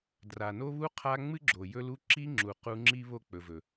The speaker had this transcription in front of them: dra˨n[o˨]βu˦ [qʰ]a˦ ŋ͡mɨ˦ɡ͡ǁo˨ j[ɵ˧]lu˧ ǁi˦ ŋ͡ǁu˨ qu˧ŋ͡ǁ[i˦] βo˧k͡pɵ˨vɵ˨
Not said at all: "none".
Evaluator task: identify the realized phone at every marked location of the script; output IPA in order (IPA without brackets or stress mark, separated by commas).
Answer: o˦, qʰ, ɵ˧, i˦